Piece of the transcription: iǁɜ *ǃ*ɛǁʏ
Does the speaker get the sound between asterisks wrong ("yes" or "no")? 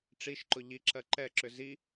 no